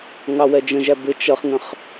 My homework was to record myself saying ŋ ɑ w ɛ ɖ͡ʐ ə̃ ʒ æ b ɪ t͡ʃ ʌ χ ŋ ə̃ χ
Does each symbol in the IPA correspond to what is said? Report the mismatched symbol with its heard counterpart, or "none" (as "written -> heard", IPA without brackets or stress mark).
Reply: ɖ͡ʐ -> d͡ʒ